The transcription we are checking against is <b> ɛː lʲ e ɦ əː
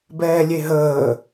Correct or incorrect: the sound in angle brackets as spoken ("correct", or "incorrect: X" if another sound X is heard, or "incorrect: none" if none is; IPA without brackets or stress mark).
correct